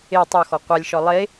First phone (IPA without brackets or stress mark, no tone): e